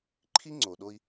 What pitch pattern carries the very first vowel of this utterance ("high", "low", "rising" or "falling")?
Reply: high